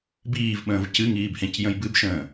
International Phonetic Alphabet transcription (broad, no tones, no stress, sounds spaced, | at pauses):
b iː v ɓ ə̃ː v c ɨ ŋ iː b h ẽ c j ə̃ j b ɨ b ʃ ə̃ː